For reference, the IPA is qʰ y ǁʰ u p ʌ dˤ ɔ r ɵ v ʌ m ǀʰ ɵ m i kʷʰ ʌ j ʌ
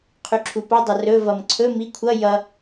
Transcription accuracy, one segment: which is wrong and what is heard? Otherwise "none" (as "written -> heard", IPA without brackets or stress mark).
ɔ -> ʌ